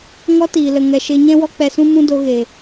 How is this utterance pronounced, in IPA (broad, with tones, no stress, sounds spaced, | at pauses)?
ŋ ɔ˧ t iː˨ l ə˨ ŋ ɛ˨ ʃ e˧ ɲ ɛ̃˦ w ɔ˦ k͡p ɛ˧ s ũ˦ m ũ˦ d o˧ ɣ e˨